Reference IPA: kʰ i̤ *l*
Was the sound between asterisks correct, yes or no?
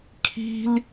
yes